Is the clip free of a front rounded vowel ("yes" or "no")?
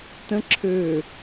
no